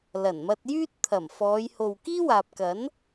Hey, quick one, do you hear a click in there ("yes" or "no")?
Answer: no